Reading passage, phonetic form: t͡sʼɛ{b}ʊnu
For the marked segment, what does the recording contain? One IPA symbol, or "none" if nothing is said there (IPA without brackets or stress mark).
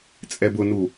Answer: b